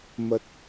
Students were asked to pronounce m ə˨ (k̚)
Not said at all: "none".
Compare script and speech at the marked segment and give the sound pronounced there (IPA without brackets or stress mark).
t̚